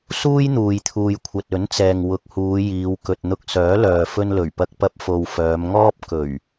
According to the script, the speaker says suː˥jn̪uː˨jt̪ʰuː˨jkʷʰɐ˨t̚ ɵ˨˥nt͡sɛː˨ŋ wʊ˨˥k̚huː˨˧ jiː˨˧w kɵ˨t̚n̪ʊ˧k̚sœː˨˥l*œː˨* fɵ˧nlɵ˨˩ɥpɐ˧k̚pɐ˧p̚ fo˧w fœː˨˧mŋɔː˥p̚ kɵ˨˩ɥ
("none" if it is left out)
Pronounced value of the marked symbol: œː˨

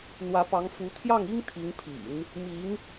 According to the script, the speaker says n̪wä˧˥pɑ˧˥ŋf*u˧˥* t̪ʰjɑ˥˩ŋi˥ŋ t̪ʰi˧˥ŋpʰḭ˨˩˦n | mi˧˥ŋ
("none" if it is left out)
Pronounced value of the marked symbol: u˧˥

